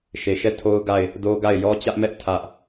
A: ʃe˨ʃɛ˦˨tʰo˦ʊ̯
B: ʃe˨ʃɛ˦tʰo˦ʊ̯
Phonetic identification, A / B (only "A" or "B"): A